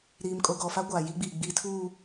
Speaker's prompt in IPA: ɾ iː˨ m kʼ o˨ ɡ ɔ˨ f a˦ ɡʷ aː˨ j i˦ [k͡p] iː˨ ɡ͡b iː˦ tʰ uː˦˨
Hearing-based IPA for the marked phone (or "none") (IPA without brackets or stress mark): ɡ͡b